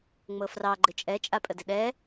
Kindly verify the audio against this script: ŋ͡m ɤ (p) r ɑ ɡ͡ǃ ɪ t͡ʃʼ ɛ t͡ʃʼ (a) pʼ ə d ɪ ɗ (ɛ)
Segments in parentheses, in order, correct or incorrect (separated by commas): incorrect, correct, correct